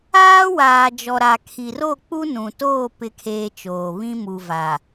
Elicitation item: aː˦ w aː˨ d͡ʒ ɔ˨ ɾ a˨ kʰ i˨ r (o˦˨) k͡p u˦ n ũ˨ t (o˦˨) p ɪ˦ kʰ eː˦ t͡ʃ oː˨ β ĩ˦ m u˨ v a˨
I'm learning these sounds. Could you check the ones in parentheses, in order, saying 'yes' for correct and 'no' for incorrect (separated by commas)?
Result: yes, no